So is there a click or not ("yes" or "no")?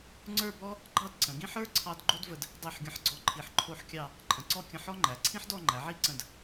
yes